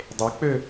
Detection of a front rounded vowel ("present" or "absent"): present